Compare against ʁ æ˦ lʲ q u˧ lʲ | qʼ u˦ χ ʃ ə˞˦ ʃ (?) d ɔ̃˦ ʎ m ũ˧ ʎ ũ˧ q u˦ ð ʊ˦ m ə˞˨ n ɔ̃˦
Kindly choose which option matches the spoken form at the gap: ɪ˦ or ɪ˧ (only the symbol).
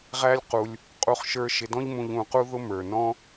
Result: ɪ˧